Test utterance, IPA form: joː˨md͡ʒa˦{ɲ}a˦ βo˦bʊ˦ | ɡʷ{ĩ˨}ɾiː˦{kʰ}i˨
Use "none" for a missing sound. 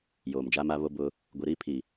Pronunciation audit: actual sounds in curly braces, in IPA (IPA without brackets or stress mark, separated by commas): m, i˨, pʰ